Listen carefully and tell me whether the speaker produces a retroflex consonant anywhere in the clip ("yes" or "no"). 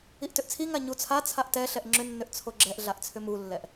no